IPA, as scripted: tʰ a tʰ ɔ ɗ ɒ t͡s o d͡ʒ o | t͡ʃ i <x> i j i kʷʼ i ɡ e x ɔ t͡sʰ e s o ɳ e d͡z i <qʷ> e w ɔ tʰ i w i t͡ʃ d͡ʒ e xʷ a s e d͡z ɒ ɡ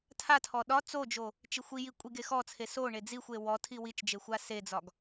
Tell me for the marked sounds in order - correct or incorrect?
incorrect: xʷ, incorrect: xʷ

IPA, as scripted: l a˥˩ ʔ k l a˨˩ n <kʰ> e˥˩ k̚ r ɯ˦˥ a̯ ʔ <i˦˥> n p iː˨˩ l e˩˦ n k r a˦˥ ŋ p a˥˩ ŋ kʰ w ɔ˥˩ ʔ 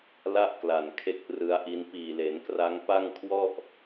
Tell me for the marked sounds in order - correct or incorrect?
correct, correct

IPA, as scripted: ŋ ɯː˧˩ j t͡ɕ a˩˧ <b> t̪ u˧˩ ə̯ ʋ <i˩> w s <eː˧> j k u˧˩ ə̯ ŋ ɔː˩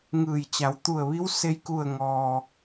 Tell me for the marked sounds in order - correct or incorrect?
incorrect: w, incorrect: i˧˥, incorrect: e˧

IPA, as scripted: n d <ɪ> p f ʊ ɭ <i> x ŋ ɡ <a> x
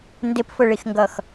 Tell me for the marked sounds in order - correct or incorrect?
correct, correct, incorrect: ʌ

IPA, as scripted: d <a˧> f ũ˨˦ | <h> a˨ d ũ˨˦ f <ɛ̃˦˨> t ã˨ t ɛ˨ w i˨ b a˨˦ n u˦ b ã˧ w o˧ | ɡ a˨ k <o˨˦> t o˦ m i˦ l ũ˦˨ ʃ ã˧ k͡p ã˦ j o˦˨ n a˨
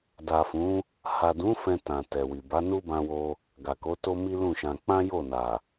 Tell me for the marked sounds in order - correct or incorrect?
incorrect: a˨, correct, incorrect: ɛ̃˧, correct

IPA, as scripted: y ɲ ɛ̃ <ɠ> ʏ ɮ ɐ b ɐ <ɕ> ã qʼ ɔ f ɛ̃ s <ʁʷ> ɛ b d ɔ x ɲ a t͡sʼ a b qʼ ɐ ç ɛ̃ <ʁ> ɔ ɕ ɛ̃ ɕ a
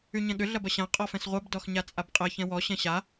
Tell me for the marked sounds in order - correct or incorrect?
correct, correct, correct, incorrect: w

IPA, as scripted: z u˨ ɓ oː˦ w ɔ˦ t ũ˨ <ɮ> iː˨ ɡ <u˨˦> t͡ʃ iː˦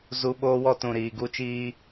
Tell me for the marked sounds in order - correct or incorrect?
incorrect: ɾ, incorrect: u˦

